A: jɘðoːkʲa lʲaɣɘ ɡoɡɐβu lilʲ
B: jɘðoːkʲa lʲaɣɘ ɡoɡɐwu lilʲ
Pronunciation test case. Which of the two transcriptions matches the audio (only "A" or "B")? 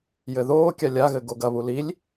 A